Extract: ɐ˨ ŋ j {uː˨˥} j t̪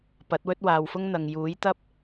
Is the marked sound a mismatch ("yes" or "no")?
no